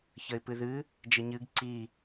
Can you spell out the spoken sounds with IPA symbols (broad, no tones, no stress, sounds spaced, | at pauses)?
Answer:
ç ə ɪ̯ p ɨ ð ɨ | d͡ʒ ə ɲ ɨ ɡ ǀ i